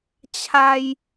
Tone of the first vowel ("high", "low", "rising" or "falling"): high